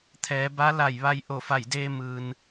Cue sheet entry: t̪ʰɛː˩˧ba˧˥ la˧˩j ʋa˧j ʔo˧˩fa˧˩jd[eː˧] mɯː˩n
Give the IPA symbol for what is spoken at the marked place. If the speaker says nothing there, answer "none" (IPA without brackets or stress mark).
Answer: eː˧